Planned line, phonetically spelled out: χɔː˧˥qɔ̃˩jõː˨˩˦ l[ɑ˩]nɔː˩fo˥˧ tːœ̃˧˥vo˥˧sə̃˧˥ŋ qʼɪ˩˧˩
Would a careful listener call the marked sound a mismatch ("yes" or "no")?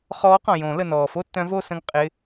yes